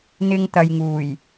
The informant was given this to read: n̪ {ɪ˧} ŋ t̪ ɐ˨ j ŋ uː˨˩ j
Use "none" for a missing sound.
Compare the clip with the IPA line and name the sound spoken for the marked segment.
ɪ˧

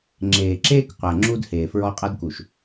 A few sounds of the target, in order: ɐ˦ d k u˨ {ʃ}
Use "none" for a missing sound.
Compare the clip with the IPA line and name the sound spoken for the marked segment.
ʃ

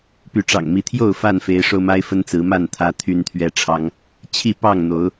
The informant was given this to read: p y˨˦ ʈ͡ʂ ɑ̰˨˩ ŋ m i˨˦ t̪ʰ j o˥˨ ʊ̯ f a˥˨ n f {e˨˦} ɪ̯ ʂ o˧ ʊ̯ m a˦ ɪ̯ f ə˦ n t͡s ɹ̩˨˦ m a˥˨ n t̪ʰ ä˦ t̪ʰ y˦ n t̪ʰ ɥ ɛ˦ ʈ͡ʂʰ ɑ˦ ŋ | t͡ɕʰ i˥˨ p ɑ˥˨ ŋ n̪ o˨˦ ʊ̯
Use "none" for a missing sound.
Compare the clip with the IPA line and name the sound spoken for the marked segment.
e˨˦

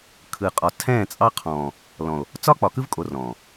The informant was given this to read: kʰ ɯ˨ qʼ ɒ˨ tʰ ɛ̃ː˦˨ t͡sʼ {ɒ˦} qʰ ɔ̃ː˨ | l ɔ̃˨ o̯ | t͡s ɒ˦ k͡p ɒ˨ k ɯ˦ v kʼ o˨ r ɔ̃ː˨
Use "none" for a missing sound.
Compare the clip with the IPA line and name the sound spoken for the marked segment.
ɑ˦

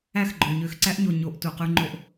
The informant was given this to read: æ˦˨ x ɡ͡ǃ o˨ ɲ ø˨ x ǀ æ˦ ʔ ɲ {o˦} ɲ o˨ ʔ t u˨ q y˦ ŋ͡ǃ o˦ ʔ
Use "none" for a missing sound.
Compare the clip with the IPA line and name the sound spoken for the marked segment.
o˨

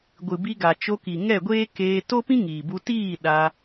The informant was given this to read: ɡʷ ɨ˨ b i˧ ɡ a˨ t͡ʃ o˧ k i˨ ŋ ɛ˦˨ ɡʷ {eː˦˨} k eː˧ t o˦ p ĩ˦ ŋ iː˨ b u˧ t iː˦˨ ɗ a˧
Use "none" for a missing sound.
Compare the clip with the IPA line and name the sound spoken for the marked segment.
eː˦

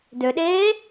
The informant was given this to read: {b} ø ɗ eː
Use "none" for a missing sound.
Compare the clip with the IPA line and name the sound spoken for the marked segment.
d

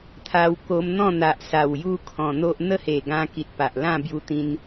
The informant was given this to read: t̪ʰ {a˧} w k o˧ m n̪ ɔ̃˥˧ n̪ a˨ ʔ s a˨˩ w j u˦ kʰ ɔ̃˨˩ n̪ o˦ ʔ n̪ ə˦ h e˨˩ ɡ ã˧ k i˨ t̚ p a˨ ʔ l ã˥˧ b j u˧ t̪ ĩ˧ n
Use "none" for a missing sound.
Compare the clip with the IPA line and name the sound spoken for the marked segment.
a˧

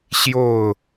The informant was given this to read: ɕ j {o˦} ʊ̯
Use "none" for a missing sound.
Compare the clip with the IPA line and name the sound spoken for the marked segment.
o˥˨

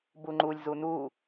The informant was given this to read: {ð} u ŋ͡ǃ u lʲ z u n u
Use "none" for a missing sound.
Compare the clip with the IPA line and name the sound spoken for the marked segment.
b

